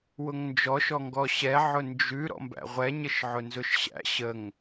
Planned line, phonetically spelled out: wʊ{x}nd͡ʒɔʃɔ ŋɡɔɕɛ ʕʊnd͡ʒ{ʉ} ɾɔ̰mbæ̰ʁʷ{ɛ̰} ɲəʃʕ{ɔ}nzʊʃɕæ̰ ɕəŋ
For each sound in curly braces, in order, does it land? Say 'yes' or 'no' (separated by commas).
no, yes, no, no